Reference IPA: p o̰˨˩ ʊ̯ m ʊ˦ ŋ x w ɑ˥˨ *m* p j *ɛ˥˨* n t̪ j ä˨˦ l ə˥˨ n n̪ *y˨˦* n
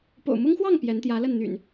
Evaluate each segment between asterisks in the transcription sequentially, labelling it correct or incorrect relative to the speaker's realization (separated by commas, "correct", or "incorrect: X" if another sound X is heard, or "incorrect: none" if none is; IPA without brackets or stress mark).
incorrect: ŋ, incorrect: ɛ˨˦, incorrect: y̰˨˩